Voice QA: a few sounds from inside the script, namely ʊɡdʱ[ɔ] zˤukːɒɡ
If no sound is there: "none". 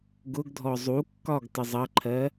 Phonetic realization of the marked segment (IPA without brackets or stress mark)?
ɔ